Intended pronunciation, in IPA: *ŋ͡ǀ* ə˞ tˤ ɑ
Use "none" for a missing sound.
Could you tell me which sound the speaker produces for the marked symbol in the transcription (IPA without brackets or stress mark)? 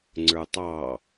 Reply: ŋ͡ǀ